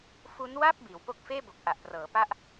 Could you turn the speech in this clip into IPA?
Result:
f u˦˥ n w a˥˩ p̚ b iː˩˦ w p o˦˥ k̚ f eː˥˩ b o˨˩ k̚ ʔ a˨˩ ʔ p r ɤː˩˦ p a˦˥ ʔ

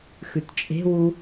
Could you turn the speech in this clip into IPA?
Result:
x ʉ t t͡ʃʼ e̤ w u

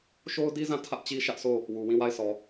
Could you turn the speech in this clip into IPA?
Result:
ʃ o˦ ʊ̯ d i˦ z ã˦˨ tʰ ä˦ ʔ t͡ɕ i˦ ʃ ä˦ ʔ sʰ o˦˨ | w u˨ w ĩ˦˨ w a˦˨ ɪ̯ sʰ ɔ˨

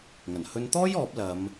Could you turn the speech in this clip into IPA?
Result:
ŋ ɐ˨˩ n h ɵ˧ n t̪ ɔː˥ j ɔː˨˥ p̚ l ɐ˨˧ m

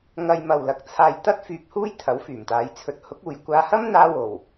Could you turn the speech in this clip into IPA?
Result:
ŋ ɐ˧ j m ɐ˨ w l ɐ˨ k̚ t͡sʰ aː˧ j t̪ ɐ˥ t̚ f yː˧ p̚ h uː˥ j t̪ʰ ɐ˨˥ w f yː˨˩ m t̪ aː˨˧ j t͡sʰ ɵ˨˥ t̚ h ʊ˨˥ k̚ uː˨ j kʷ aː˧ h ɐ˥ m n̪ aː˧ w o˨˩ w

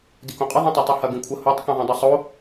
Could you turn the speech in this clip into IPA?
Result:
d i k õ qʼ ə ðˤ ĩ tˤ a tˤ i h ɐ ɡ ĩ kʷʰ ə h o tˤ k ĩ ðˤ õ dˤ ɐ sˤ o

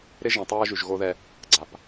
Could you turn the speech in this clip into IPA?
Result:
ɾ ɪ˦ ʒ ĩ˨ tˤ ɐː˦ ʒ y˨ ʒ ɣ o˦ ð ɛ˦ | ɡ͡ǀ a˨ p

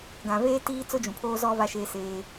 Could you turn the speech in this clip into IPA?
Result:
ɡ ã˨ v eː˦ t iː˦ t͡s ʊ˦ d͡ʒ ũ˨ pʰ oː˦ z ɔ˦ v a˦ ʃ eː˦ s eː˦

